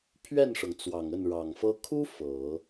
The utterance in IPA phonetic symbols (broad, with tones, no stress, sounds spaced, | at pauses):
pʰ ɥ ɛ˥˩ n ʂ ɤ˩ ŋ t͡s w ɑ˨˩ ŋ ə˥˩ n ɻ ɑ˨˩ ŋ f ɤ˥ kʰ u˥ f ɤ˨˩˦